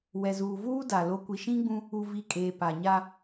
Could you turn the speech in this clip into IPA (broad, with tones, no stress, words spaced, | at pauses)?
wɛ˨zuː˨vuː˦ da˨ lo˨kʷi˨ʃĩ˦ɡ͡bũ˦ | u˨vi˨ kʼeː˨pa˨ɲa˦